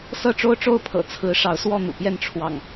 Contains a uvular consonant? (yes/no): no